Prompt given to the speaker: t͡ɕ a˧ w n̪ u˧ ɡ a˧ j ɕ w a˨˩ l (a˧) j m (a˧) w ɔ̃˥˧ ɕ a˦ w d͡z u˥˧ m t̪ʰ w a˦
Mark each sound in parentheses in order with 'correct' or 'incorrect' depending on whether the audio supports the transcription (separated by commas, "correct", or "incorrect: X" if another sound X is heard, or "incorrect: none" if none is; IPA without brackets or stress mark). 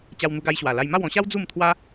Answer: correct, incorrect: a˥˧